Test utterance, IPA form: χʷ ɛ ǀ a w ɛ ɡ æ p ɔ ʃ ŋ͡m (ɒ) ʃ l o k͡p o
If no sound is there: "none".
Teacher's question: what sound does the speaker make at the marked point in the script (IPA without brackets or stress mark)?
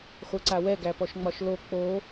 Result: ɒ